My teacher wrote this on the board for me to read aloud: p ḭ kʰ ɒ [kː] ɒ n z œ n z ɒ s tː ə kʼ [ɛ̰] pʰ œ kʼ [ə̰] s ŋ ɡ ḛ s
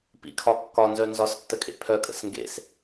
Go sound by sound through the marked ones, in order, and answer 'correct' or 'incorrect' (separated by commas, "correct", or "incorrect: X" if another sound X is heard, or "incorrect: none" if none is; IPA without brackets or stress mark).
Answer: correct, incorrect: ḛ, correct